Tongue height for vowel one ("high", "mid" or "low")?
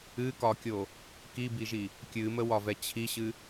high